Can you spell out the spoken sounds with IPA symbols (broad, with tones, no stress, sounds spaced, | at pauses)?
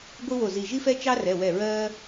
ɡʷ ɨ˦ w o˧˩ z i˧˩ ʒ i˦ f ɛ˦ t͡ʃ ɑ˦ r ɛ˩˧˩ w ɛ˧˩ ɹ ɜː˦